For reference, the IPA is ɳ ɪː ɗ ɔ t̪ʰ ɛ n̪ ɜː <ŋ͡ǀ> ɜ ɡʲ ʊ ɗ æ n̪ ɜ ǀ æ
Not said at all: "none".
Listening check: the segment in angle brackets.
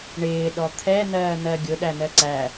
n̪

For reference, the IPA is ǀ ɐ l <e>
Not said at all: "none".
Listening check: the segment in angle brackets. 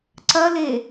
e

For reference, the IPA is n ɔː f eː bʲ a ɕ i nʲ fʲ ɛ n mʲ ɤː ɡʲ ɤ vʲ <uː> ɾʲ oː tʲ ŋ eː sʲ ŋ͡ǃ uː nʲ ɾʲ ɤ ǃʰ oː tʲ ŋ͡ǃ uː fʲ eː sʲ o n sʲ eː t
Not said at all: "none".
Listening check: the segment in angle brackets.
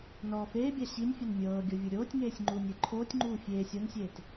u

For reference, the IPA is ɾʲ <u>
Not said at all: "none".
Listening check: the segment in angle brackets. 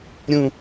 ũ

